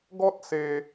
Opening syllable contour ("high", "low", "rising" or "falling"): high